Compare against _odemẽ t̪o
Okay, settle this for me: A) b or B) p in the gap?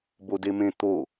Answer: A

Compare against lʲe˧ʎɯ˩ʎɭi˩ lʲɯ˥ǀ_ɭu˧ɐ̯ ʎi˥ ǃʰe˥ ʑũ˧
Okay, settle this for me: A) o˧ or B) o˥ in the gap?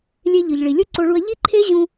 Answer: A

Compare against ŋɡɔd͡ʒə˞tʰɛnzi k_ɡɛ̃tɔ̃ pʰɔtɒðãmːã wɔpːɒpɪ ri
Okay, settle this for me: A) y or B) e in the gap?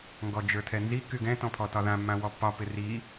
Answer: A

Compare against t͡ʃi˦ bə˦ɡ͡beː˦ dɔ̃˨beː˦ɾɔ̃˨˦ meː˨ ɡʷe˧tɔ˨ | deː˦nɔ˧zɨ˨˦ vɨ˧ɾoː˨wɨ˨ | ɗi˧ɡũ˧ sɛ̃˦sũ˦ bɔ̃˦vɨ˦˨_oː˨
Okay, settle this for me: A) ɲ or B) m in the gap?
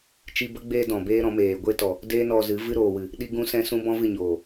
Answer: A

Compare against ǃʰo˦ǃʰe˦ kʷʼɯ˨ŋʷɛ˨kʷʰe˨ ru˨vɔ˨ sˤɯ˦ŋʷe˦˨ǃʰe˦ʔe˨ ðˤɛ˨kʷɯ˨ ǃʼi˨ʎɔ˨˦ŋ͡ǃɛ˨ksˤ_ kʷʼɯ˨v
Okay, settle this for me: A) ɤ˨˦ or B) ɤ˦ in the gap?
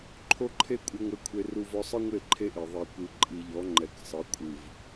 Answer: A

